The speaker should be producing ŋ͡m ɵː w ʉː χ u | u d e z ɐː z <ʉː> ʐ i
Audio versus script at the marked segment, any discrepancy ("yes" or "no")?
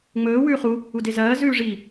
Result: no